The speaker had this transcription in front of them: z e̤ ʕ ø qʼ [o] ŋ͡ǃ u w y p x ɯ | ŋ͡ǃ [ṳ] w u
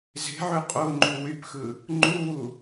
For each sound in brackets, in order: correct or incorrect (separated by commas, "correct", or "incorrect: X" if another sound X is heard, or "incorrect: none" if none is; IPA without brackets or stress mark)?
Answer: correct, incorrect: u